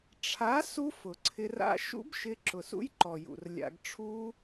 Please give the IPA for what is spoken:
ʈ͡ʂʰ a˨˦ s u˦ f ʊ˨ ǀʰ ɪ˧ r a̰˦ ʃ ṵ˦ b ʃ ɪ˧ ǁ ʊ˨ s ṵ˦ j ǃ ɔ˨ j ṵ˨ r lʲ a̰˧ ɡ ʈ͡ʂʰ u˦

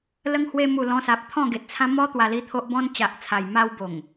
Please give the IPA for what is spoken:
l ə˧ ŋ h w e˧ m u˨˩ l ɔ̃˧ s a˨ p̚ t̪ʰ ɔ̃˥˧ ɡ e˨ t̚ t͡sʰ ã˦ m ɔ˦ t̪ w a˧ l i˥˧ t̪ʰ o˦ ʔ b ɔ̃˦ n t͡ɕ a˨ ʔ t͡sʰ a˨˩ j m a˧ w b o˨˩ ŋ

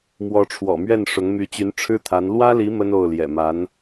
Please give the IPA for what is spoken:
m w ɔ˧˥ ʈ͡ʂʰ w ɔ̰˨˩ m ɥ ɛ˥˩ n ʂ ʊ˧˥ ŋ m y˧˥ t͡ɕ y˧˥ n ʈ͡ʂʰ ɻ̩˥ t̪ʰ a˧˥ n l w ä˥ l i˧˥ m ə˥ n o˥˩ ʊ̯ l j ɛ̰˨˩ m a˧˥ n

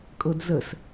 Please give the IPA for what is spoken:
kʼ ɤ d z ə s

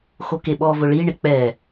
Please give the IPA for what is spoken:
x o k e ɓ ɔ v ʊ ɭ i ɳ ɪ k͡p ɛ

